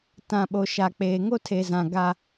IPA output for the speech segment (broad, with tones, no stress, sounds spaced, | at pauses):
t ã˨ ɓ o˨ ʃ a˨ k͡p eː˨ ŋ o˦ tʰ e˨ z ã˨ ɡ a˦